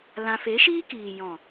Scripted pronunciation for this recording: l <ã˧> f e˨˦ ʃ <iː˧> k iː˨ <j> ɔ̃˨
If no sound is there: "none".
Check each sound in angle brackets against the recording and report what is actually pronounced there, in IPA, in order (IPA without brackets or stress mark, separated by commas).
ã˧, iː˦, j